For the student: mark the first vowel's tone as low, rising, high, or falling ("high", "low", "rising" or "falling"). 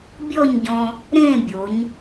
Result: falling